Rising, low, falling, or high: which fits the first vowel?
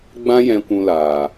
high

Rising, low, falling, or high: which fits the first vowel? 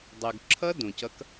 low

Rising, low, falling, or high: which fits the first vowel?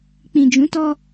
low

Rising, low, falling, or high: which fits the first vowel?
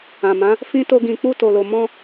low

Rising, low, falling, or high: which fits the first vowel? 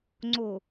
low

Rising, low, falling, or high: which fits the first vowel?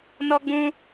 high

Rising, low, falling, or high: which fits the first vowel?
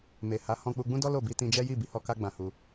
low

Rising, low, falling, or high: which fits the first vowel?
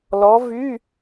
rising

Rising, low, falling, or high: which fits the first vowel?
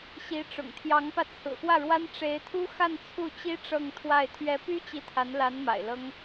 rising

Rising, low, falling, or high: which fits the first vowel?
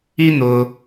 high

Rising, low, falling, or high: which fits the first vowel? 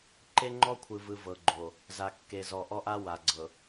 high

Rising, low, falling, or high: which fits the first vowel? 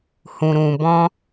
low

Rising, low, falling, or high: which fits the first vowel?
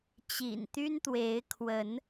low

